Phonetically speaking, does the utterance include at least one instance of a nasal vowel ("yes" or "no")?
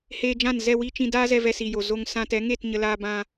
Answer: yes